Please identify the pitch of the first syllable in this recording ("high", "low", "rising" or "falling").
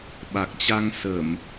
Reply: low